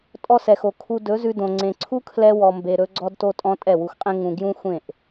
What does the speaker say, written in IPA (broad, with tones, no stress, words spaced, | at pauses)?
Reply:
tʼɔ˧sɛ˨xo˨ kʰu˧ dɵ˨˦zʉ˧dõ˨ ŋ͡ǀẽ˨ǀʰu˦kʰlɛ˧ wɔ˨mbe˨ ɾɵ˧ɡ͡ǀɔ˧dto˧tʼɔ̃˧ tʼɛ˦˨wu˧xqʼẽ˦ ŋũ˧ ɡjũ˦xʷẽ˦˨ʔ